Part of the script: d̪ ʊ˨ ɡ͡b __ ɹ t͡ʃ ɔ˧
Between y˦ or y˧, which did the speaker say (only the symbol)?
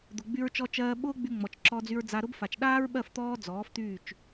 y˧